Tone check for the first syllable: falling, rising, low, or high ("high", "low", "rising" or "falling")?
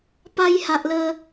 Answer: high